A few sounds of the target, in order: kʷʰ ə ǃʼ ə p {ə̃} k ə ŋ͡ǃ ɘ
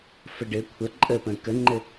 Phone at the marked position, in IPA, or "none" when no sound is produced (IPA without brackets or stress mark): ə̃